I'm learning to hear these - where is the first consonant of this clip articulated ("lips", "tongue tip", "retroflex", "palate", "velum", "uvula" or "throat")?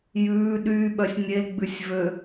palate